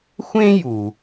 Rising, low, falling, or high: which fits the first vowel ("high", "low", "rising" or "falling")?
high